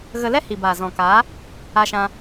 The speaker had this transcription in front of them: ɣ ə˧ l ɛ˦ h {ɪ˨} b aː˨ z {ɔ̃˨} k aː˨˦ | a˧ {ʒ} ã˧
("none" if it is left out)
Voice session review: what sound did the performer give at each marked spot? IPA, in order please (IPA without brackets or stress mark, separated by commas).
i˨, ɔ̃˨, ʃ